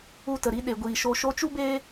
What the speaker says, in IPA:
u˧ t ə˨ ɾ i˧ ɗ e˨ ɡʷ iː˨ ʃ o˧ ʃ o˧ t͡ʃ u˦ b eː˦

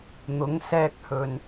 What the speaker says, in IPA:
n̪ ʊ˨˧ ŋ s ɛː˧ k̚ h ɵ˨ n

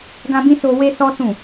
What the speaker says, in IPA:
ɡ ã˦ b ĩ˦ s o˧ w e˦ s ɔ˦ s ũ˦˨

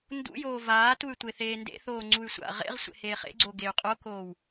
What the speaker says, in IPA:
n d ṵ j oː v aː t u y̯ tʷ e θ eː n d ḛ θ oː ŋ͡ǀ u y̯ sʷ a̰ ʁ ḛ ʁ sʷ ḛ h eː χ ḛ ɡ͡ǀ o ɡ e y̯ qʼ o k oː w

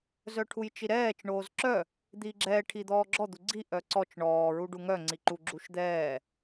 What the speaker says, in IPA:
z œ ʈʰ u j t͡ʃ i ɾ ɛː t͡ʃ ɳ oː z ǁ œ | d̪ iː ɡ͡ǁ ɛː ʈʰ i d̪ ɔː ɡ͡ǁ ɔ d̪ u ɡ͡ǀ i ʔ œ ǀ ɔ t͡ʃ ɳ ɔː ɹ u ɖ u ŋ œ ŋ͡ǀ i ǃ u ɡ͡ǁ u ʃ d̪ ɛː

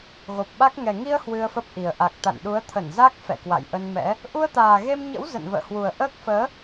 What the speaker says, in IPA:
ɣ o˨˩ p̚ ɓ a˦˥ k̚ ŋ ɛ˨˩ ŋ i˧ ə̯ h w ɨ˧ ə̯ f ə˦˥ p̚ ʔ i˨˩ ə̯ ʔ a˨˩ k̚ t̪ a̰˧˨ n ɗ u˨˦ ə̯ t̪ʰ ə˧˩ n z a˦˥ k̚ f ɛ̰˧˨ k w a̰˧˨ j ʔ ə˧ n m ɛ̰˧˥ | ʔ u˧ ə̯ t̪ aː˨˩ ɣ e˧ m ɲ ə̰˧˥ w z ə̰˧˨ n v ə̰ː˧˨ h w u˨˩ ə̯ ʔ əː˦˥ k̚ f əː˨˦

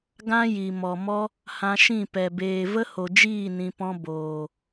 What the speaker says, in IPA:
ɡ ã˦ j i˨ m ɔ˨ m ɔ˦ | h ã˧ ʃ ĩ˦˨ p ɛ˨ b eː˨ v ə˦ h o˨ d͡ʒ iː˦˨ n ĩ˧ p ɔ̃˦ b oː˨

